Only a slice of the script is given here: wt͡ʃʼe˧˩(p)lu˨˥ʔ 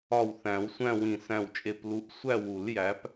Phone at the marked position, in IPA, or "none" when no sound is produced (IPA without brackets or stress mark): p